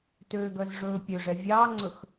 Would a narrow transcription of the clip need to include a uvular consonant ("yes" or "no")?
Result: no